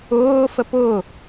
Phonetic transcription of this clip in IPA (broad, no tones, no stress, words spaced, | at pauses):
ʊːfəp ʊ